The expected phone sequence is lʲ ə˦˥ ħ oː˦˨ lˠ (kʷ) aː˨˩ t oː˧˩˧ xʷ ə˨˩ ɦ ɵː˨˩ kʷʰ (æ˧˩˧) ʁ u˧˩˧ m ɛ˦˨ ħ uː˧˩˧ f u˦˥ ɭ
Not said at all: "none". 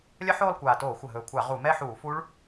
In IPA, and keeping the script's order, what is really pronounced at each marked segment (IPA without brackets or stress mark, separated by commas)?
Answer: kʷ, a˧˩˧